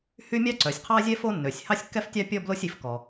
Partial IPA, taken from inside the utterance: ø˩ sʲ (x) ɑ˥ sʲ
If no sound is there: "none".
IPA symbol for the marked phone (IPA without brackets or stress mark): h